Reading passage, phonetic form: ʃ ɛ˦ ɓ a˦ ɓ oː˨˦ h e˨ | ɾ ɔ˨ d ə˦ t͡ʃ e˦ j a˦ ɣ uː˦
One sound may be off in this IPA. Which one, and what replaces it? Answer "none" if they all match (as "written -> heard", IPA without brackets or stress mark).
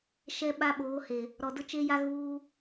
ə˦ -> ʊ˦